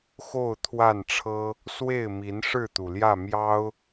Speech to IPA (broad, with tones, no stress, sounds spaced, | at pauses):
x o˥˨ ʊ̯ t̪ʰ w a˥˨ n ʈ͡ʂʰ ɤ˦ | s w e˥˨ ɪ̯ m i˨˦ n ʂ ɻ̩˥˨ t̪ u˩ l j ä˥˨ m j ɑ˦ ʊ̯